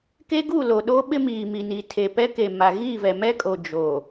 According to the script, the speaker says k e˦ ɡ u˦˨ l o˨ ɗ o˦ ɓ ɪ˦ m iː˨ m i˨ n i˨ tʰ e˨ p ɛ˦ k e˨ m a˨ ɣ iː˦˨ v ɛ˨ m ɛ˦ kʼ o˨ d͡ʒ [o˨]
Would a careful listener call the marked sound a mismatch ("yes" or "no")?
no